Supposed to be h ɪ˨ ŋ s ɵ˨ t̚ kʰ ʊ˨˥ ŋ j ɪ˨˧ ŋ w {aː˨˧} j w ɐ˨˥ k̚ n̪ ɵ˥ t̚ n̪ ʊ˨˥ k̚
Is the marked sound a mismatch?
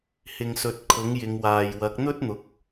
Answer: yes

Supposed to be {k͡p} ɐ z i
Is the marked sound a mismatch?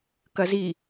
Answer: yes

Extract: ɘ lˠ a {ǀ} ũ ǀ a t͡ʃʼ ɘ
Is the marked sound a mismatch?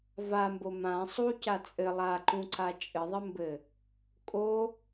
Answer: yes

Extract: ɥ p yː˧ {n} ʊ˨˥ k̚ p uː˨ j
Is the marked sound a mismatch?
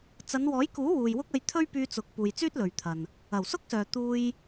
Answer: yes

